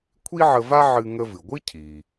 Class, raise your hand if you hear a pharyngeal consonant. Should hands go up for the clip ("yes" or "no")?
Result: yes